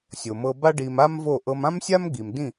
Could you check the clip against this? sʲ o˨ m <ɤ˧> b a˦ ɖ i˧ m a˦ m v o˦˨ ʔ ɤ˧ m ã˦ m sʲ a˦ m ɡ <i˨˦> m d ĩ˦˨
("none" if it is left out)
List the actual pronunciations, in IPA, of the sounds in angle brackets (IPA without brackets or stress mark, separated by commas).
ɤ˧, i˨